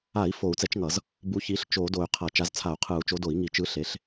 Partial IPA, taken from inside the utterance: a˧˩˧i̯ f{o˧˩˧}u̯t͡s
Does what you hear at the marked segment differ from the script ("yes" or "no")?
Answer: no